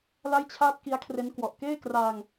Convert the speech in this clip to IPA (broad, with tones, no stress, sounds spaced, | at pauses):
l a˥˩ j t͡ɕʰ aː˥˩ t̚ k i˦˥ a̯ kʰ r e˦˥ n k w ɔ˨˩ ʔ k eː˥˩ k r aː˧ ŋ